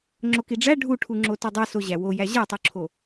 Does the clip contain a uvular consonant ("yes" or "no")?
no